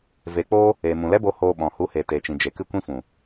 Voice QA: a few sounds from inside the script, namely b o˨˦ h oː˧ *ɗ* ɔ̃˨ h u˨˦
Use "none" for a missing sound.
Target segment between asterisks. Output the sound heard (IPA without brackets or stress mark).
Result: ɓ